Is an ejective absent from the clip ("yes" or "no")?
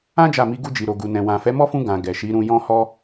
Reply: yes